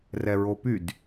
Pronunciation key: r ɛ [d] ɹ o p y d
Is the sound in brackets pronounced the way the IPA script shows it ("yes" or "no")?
no